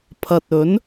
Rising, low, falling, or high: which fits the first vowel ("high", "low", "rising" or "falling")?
low